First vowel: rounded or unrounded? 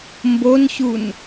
rounded